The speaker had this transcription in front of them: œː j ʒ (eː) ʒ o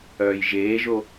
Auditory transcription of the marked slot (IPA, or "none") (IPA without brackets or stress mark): eː